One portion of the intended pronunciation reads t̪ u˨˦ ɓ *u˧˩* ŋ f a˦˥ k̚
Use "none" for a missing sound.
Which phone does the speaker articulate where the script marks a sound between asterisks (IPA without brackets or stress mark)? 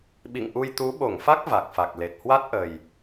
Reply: o˧˩